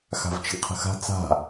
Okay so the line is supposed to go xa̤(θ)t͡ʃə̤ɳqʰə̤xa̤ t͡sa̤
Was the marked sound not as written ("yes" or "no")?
yes